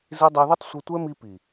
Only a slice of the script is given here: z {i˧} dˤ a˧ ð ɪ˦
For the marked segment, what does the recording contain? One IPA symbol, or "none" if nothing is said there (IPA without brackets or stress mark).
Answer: i˧